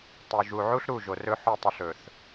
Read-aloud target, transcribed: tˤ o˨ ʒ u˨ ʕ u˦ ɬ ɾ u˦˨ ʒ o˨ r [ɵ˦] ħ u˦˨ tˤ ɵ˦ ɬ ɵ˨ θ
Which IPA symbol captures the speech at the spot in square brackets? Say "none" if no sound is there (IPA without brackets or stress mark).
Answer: ɵ˦